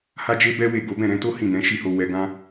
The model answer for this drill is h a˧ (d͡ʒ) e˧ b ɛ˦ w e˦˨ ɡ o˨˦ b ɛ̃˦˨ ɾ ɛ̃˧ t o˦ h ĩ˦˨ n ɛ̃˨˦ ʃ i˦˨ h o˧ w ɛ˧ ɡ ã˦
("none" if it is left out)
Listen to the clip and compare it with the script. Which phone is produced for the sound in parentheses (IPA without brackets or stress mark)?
d͡ʒ